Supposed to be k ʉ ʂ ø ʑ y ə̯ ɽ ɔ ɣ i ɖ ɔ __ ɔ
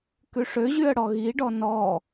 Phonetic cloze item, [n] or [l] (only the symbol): n